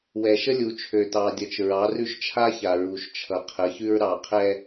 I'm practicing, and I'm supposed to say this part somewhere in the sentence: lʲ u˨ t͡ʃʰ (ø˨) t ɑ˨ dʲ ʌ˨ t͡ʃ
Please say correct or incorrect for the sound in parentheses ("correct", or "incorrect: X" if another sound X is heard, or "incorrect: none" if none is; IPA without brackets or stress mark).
correct